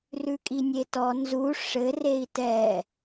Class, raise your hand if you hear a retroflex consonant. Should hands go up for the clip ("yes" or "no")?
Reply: yes